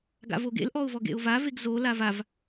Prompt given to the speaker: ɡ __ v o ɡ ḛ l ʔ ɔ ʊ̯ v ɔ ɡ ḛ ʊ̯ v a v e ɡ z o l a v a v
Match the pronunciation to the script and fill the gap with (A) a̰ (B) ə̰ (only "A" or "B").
A